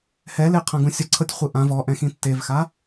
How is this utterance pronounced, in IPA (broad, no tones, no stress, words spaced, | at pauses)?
hɛleqʰã ɡũsʲɤǀʰɤtʲ χʷɯʔã vɔʔɛ̃xĩ tːevxa